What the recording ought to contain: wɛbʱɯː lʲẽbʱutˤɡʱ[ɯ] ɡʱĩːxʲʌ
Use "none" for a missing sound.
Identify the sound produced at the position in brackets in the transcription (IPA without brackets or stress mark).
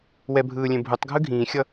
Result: ɯ